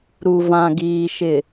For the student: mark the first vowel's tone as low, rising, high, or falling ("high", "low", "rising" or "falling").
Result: low